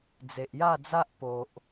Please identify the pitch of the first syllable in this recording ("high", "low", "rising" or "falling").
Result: low